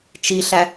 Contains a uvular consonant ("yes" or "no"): no